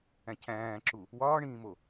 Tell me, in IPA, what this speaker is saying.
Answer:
æ̃ cʰ æ̃ː ǁ u | w ɒː ɳ ĩː m o

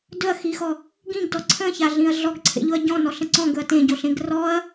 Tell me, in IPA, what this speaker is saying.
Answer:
d ɵ ɐ̯ x i x ɔ | ɡ ĩ ɡ d ɔ ǀʰ ə̃ ç a ɮ ĩ ɐ̯ ɮ ɔ ɡ ǀʰ ḛ ʎ ʊ ɐ̯ ɟ ɔ̃ n ɔ ɬ ə̃ ǀ ɔ̃ ɡ ɵ ɐ̯ t ẽ ɟ o ɬ ẽ ɡ r ɔ ɐ̯

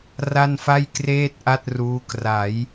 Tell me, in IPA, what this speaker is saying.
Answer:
r a˥˩ n f a˥˩ j k r eː˥˩ t̚ ʔ a˥˩ t̚ r uː˦˥ k r a˩˦ j

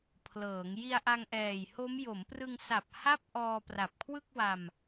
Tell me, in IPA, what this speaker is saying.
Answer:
pʰ l ɤː˩˦ ŋ j i˧ a̯ ʔ a˧ ŋ ʔ ɛː˨˩ j h o˦˥ m j o˩˦ m p r ɯ˧ ŋ s a˨˩ p̚ h a˥˩ p̚ ʔ ɔː˧ p r a˨˩ p̚ kʰ w ɯ˥˩ k̚ w a˧ m

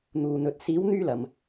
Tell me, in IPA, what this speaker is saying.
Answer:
n̪ uː˧ n̪ ɵ˧ t̚ s iː˨˥ w n̪ yː˧ l ɐ˨ m

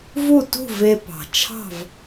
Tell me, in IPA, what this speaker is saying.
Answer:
v u˥˨ t ṳ˥˨ v e˧ p ɑ̤˩ t͡ʃʰ ɑ̤˥˨ v

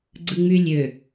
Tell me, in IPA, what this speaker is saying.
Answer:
ɡ͡ǀ ɯ ŋ͡m y lʲ ø

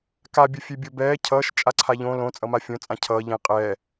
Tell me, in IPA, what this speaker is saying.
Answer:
k a bʲ ʌ fʲ e bʲ o b ɛː cʰ ʌː ʃ t͡ʃʼ a ǀʰ a ʎ õ l õ t͡sʼ ʌ m a fʲ õ t͡sʼ ã cʰ ʌː ʎ ẽ qʼ ɛ

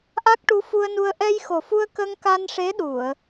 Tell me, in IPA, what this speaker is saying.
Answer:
ʔ a˦˥ k̚ ʈ u˧˥ f u˧ ə̯ n u˧ ə̯ ʔ ɛ˧ j x o˨˩ f u˧ ə̯ k ə˧ ŋ k a˧ n ʂ e˧˥ ɗ u˨˩˨ ə̯

